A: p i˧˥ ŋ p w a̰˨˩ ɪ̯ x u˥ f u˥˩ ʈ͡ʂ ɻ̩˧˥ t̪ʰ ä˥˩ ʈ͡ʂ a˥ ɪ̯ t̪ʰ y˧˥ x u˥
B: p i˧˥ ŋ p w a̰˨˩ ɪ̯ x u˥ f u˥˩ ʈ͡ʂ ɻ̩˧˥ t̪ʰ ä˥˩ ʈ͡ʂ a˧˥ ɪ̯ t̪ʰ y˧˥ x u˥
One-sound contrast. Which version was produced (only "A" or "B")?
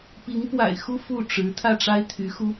A